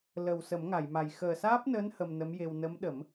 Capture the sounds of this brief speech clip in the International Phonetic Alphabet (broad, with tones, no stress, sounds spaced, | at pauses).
l ə˨˩ w s ə˨˩˦ m ŋ a˨˩˨ j m a˨˩ j x əː˨˩ s aː˦˥ p̚ n əː˧˥ n h ə˧ m n ə˧˥ m j e˧ w n ə˧˥ m ɗ ə˨˩˦ m